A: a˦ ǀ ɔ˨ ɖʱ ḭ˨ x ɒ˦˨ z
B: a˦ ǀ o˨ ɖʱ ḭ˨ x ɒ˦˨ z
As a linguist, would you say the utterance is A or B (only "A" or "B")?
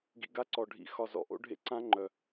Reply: A